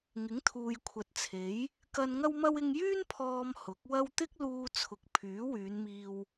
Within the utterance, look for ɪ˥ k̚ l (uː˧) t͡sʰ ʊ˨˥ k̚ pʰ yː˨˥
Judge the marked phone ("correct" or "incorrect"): correct